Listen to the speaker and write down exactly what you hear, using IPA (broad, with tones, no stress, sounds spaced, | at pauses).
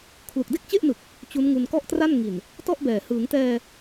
kʰ l u˨˩ k̚ d e˥˩ k̚ t͡ɕ e˥˩ ʔ n ɯ˨˩ k̚ | t͡ɕ u˦˥ n ŋ u˧ n k ɔ˥˩ ʔ t r a˥˩ n ŋ i˨˩ n | t ɔ˥˩ ʔ b ɛː˨˩ h ɯː˩˦ ŋ t ɛː˧